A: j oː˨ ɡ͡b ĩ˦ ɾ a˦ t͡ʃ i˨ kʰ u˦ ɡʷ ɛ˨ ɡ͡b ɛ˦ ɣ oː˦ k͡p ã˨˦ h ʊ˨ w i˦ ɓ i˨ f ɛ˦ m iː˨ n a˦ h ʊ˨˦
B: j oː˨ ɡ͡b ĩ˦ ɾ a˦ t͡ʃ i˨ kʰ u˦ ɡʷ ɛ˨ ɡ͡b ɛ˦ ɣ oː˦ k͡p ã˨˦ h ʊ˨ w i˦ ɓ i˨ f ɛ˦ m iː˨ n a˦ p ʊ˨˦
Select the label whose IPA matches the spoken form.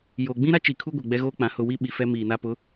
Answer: B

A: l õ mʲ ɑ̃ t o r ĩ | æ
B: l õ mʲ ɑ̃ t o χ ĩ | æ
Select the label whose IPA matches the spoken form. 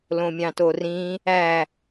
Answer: A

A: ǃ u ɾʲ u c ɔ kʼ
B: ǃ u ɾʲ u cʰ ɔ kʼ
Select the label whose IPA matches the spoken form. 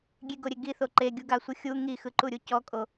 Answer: A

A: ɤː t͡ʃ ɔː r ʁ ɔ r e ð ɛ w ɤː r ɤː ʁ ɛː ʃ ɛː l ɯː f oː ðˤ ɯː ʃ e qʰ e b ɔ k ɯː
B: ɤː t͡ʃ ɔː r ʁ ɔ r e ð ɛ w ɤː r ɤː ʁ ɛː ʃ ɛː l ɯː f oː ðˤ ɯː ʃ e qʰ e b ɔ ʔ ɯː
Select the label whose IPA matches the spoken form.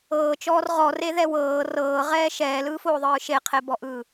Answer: B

